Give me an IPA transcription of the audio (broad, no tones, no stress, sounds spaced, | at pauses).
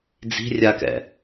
d͡z i̤ rʲ a k ɛ̰